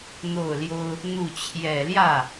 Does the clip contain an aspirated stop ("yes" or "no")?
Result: yes